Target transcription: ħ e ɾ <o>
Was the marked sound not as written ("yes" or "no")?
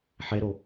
no